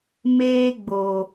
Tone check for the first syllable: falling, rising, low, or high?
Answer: high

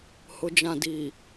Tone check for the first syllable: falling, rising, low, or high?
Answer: low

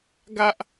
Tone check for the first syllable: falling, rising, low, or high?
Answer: high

